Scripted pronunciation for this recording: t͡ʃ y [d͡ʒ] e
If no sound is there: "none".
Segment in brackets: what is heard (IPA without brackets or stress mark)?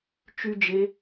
d͡ʒ